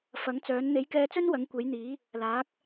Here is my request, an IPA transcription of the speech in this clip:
fɐ˨˥ŋ t͡sœː˨˥n n̪e˨˥jkɛː˧t͡sɵ˥n wɐ˨˥ŋkʷe˨˥j n̪iː˨˥ | laː˨˥k̚

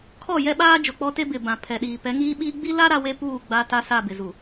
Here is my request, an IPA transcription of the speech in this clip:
kʰɔ˦˨jɛ˦ɓaː˦ d͡ʒʊ˨k͡pɔ˦te˦ bɪ˨bã˨ pʰɛ˨ɗiː˨ pɛ˨˦ŋiː˦ɓiː˦ ɡ͡bi˦la˦ ɾa˦we˦puː˦˨ ɡ͡ba˦ta˦ sa˦˨bɪ˨zu˨

